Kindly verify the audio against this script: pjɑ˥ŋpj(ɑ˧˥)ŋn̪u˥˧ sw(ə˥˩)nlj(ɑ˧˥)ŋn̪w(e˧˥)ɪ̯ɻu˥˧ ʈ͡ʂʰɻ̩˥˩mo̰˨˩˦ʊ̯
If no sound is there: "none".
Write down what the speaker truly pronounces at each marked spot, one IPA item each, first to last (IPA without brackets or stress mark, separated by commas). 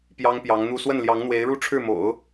ɑ˧˥, ə˥˩, ɑ˧˥, e˧˥